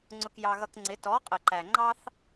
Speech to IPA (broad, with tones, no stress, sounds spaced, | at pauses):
ŋ͡ǀ ʊ˧ k j ɑ˧ ɣ ʌ˧ k ŋ͡ǀ ɪ˨˦ t ɔ˨˦ qʼ ə˨ ǃ æ˨ ŋ͡ǃ ɑ˦ θ